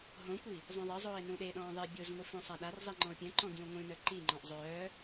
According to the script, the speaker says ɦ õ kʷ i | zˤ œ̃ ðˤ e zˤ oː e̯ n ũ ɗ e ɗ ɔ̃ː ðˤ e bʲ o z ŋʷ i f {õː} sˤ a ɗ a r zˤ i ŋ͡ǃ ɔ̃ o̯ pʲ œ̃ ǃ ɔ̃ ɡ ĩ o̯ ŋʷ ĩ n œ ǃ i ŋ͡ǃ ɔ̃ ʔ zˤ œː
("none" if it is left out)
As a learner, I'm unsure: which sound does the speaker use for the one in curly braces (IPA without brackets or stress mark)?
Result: õ